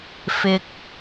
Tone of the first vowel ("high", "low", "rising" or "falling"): high